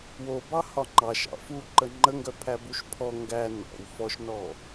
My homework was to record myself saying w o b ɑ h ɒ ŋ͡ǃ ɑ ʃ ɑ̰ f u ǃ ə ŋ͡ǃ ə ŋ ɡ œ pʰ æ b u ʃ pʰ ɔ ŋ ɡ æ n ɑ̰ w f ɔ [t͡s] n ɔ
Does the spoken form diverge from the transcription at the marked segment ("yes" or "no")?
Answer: yes